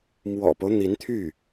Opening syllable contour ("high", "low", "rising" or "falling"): low